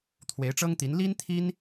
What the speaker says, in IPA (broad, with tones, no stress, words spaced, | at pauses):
t̪ʰwe˧˥ɪ̯ʈ͡ʂɤ˥ŋt̪i˧˥n li˥nt̪ʰi˥n